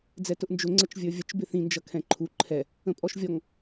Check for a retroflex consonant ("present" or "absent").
absent